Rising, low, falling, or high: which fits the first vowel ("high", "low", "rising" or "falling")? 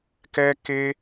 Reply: high